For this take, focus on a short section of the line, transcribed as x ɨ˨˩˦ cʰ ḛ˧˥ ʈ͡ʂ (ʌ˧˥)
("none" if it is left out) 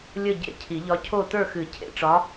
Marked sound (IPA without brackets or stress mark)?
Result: ɒ˧˥